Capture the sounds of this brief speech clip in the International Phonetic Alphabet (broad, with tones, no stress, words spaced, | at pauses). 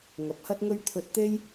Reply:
ŋɐ˨p̚hɐ˥t̚ŋɵ˥ɥ t̪ʰɵ˧t̚t̪e˥j